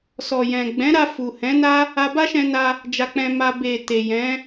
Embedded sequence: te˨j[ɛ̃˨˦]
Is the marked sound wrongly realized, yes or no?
no